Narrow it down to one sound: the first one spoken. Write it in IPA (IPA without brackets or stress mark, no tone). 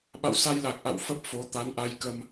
ɓ